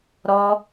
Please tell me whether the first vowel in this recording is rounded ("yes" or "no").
yes